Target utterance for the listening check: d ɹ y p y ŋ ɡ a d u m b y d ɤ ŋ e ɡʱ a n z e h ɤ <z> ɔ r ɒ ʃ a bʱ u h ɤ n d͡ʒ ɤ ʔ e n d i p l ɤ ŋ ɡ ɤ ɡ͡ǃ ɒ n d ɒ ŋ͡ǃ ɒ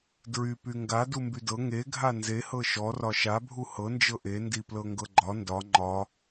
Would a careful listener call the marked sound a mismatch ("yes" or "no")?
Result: yes